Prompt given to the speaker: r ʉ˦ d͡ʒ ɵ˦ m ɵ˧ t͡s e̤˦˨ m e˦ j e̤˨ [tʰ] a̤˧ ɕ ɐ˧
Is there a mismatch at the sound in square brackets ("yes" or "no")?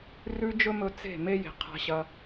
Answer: yes